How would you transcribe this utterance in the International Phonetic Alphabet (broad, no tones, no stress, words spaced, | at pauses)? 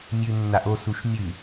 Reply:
mʲʉnːaʔ osuʃ mʲʉ